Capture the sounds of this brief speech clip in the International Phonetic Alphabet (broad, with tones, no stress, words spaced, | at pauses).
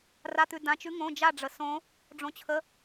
ra˧˥˧t̪ʉ˧ dã˧˥t͡ʃʉ˧˥ ŋõ˧˥˧d͡ʒa˥˧ ɖ͡ʐə˨˩˦sõ˧˥ | ɖ͡ʐõ˧˥t͡ɕʰə˧˥˧